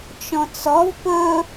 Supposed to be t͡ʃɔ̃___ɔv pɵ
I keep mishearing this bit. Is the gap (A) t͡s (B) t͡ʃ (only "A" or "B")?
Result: A